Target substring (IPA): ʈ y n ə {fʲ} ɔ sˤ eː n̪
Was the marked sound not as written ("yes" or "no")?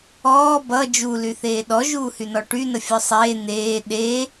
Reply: no